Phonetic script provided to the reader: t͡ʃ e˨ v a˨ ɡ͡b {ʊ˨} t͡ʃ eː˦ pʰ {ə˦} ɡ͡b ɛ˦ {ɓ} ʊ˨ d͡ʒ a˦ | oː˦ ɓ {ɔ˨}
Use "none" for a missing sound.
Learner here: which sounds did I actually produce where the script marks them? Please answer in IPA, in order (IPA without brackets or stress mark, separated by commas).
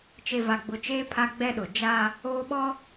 ʊ˨, a˦, ɗ, ɔ˦